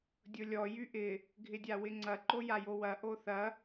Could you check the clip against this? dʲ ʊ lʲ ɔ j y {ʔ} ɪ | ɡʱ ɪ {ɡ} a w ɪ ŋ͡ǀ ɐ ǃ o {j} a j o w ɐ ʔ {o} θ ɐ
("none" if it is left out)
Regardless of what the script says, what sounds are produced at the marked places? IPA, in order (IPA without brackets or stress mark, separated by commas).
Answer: ʔ, dʲ, j, o